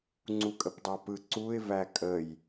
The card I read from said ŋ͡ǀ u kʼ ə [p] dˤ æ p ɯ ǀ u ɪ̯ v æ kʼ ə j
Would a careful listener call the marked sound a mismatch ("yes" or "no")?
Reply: no